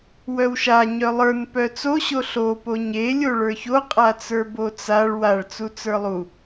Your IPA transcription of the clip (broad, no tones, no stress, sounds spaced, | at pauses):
w œ w ʃ a ɲ œ lˠ ə˞ n p œ t͡s o ɕ o ɬ o p o ɲ e lʲ o ɭ ə˞ ç o qʼ a t͡s ə˞ b o t͡s a ɭ w a ɭ t͡s u t͡s ə˞ lˠ u